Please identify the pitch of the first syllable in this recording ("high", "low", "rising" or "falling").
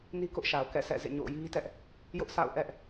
high